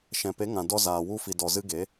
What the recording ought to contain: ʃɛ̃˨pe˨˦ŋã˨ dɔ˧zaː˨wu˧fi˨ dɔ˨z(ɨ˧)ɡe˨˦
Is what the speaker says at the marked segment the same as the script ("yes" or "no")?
yes